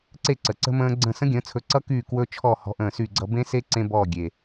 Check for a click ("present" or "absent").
present